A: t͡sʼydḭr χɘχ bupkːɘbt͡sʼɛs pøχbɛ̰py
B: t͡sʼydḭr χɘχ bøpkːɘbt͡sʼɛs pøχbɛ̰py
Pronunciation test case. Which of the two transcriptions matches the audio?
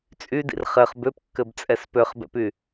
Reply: B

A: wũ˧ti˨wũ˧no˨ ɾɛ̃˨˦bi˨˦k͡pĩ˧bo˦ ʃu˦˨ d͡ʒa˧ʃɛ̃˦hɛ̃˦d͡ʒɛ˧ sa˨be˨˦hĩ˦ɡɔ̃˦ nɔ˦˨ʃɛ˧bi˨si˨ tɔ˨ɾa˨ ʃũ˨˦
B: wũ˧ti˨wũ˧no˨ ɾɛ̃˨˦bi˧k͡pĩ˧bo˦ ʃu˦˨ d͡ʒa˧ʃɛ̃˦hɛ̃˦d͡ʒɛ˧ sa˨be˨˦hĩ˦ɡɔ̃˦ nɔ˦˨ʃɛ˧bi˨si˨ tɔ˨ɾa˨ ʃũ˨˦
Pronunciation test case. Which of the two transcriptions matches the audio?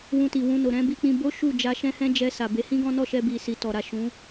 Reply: B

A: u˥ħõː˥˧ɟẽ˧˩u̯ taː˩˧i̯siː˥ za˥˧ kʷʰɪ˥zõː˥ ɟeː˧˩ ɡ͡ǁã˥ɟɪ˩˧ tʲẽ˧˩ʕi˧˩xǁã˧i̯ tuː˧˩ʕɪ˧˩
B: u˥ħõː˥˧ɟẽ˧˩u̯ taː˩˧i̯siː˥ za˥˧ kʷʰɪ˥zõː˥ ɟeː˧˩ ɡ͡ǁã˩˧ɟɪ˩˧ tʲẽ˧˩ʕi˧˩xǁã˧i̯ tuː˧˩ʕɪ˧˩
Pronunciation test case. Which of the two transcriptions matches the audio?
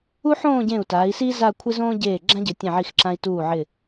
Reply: A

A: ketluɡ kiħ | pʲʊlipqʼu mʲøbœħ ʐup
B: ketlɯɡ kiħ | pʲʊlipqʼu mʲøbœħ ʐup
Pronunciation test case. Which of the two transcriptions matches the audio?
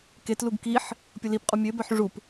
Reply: A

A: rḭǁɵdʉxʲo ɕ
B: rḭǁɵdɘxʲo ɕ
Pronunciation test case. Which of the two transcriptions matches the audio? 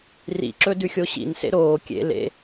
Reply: A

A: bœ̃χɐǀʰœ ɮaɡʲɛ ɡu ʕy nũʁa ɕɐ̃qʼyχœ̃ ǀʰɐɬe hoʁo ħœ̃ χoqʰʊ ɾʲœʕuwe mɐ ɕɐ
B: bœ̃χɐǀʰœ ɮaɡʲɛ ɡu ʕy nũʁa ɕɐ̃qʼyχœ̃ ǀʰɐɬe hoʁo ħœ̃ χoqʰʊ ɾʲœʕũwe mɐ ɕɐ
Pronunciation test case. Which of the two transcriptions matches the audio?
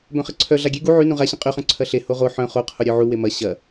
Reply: A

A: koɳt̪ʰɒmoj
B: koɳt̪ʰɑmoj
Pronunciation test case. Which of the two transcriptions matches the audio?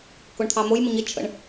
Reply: B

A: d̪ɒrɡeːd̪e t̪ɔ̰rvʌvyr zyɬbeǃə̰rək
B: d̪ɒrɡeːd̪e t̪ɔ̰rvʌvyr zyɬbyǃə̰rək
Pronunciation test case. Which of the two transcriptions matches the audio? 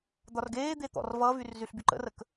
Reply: B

